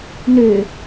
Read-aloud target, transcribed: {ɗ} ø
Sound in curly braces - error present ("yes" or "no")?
yes